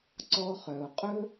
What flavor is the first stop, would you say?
click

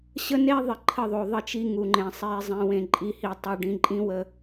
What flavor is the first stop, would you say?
click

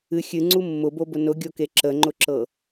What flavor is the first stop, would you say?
click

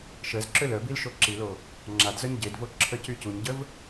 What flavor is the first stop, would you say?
click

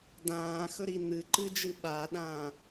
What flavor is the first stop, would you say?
plain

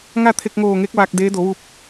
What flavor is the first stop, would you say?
aspirated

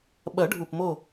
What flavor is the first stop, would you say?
implosive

